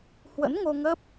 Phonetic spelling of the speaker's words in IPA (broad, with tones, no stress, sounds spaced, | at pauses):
h w ə̰˧˥ n ŋ o˧ ŋ ə˦˥ p̚